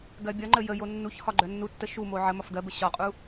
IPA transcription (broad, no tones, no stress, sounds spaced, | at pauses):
ɡ ɜ bʲ ɒ ŋ͡ǃ ə j ə j o nː u ç h ɒ ɡ͡ǃ œ nː u tː ə ʃ u m o ʕ ə m ɒ f ɡ ɜ b ə ɕ ɒ qʼ u